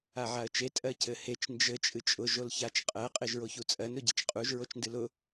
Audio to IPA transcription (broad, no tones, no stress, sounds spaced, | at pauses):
a ʕ a ə̯ t͡ʃ e tʼ ɜ c ɘ h e t͡ʃ n d͡ʒ ɘ t͡ʃʼ ɨ t͡ʃʼ ʊ ʒ o l ç a t͡ʃ qʼ ɜ qʼ e ʒ ɹ o ç u t͡sʼ ɜ n ɾ ʊ ɟ i t͡ʃ qʼ u ʒ ɹ o t͡ʃ n d ɨ l ʊ